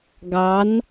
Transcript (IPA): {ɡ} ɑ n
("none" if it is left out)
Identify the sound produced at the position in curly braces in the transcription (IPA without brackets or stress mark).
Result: ɡ